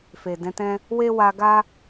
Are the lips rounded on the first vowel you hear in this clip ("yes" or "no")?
no